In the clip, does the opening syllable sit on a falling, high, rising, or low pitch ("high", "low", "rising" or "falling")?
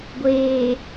low